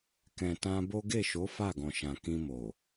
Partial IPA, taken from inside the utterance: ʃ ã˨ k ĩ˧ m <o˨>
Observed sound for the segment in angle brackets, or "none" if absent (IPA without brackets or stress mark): o˨